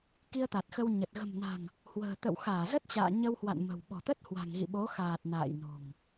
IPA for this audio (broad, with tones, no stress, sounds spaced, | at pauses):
k i˧ ə̯ t̪ a˨˩ t̚ x ə˧ w ɲ ə˨˩ t̚ ɣ ə̤˨˩ m n a̤˨˩ ŋ | h w ə̤ː˨˩ t̪ ə̰˧˨ w x aː˧˩ z ə˦˥ t̚ t͡ɕ a̰ː˧˨ ɲ ə˧ w h w a̰˧˨ n m ə̤˨˩ w ɓ ɔ̤˨˩ t̪ ə˦˥ t̚ h w a̤˨˩ ŋ ɣ ḭ˧˨ ɓ o˨˦ x aː˨˩ t̚ n a̰ː˧˨ j n o̤˨˩ ŋ